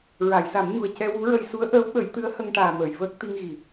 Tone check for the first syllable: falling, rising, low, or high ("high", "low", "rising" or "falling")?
low